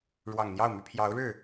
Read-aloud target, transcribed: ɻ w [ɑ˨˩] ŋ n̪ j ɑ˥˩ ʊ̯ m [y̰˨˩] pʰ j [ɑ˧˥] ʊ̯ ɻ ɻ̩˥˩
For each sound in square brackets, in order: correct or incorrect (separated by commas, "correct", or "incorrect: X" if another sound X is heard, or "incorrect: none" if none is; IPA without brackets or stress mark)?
correct, incorrect: y˧˥, correct